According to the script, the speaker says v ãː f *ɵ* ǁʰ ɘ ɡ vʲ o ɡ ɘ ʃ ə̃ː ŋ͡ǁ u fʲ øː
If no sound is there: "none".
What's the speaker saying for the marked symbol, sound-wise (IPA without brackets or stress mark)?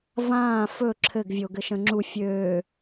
ɵ